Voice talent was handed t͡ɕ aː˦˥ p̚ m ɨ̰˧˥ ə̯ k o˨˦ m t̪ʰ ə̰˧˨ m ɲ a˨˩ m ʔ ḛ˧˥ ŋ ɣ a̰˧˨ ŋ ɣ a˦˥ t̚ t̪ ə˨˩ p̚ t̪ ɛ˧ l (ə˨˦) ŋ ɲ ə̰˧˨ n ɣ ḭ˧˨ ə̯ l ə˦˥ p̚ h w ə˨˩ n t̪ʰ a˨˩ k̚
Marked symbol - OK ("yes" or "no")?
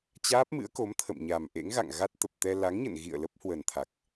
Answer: no